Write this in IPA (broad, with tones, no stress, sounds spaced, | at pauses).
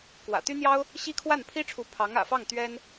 k w ä̰˨˩ t̪ y˥ n̪ j ɑ˥ ʊ̯ | ɕ i˥ kʰ w a˥˩ n pʰ i˥ ʈ͡ʂʰ u˧˥ pʰ ɑ˧˥ ŋ ä̰˨˩ f ɑ˥˩ ŋ t̪ ɥ ɛ˥ n